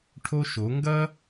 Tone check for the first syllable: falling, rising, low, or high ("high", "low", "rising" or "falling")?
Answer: high